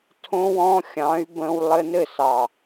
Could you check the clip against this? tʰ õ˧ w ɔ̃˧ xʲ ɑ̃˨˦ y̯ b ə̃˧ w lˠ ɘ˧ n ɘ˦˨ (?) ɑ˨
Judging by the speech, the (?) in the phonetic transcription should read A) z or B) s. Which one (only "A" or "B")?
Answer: B